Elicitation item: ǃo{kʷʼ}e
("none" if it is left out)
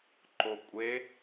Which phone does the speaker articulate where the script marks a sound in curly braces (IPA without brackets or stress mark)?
kʷʼ